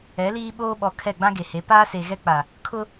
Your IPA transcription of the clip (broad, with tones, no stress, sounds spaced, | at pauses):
ɛ˨˦ l iː˦ ɓ oː˦ ɓ ɔ˨ kʰ ɛ˦˨ ɡ͡b ã˦ ɡ e˨ h e˨˦ p aː˦ s e˨ ɣ ɛ˦ k͡p a˨ | kʰ ʊ˦